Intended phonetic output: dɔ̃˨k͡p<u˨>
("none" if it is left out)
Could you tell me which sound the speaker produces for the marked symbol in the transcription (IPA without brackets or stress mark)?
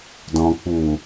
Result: u˨